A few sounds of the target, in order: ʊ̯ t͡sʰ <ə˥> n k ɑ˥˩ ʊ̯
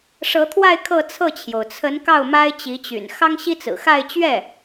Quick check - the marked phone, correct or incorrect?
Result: incorrect